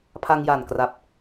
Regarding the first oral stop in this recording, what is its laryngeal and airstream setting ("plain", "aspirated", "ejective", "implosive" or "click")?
aspirated